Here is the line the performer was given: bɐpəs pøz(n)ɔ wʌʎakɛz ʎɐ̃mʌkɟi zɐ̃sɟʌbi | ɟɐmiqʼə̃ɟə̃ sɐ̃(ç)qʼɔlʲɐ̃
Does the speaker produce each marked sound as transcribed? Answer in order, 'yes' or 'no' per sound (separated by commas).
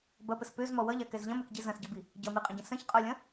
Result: no, yes